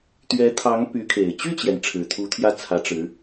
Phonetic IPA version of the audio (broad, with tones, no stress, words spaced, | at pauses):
t̪ɥɛ˧˥t̪ʰɑ˧˥ŋ py˧˥kʰe˨˩ɪ̯ t͡ɕy˥˩t͡ɕjɛ˩n ʈ͡ʂʰɻ̩˨˩t̪ʰu˧˥t̪ʰjä˥˩ t͡sʰä˧˥ʈ͡ʂɻ̩˧˥